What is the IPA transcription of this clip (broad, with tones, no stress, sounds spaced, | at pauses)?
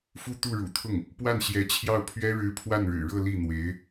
f u˥˧ t̪ u˥˩ ɻ ṵ˨˩ t̪ʰ ʊ˥˩ ŋ | p w a˥˩ n ɕ j ɛ˧˥ t͡ɕʰ j ɑ˥˩ ʊ̯ pʰ ɥ ɛ˥ ɻ ɻ̩˥ pʰ w a˥˩ n ɻ ɻ̩˨˩ ɻ ɤ˥˧ l i˥˩ n̪ w e˧˥ ɪ̯